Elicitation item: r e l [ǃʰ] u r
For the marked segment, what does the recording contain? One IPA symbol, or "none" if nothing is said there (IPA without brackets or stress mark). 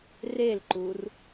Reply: ǃ